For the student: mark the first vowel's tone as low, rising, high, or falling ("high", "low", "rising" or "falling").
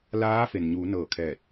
rising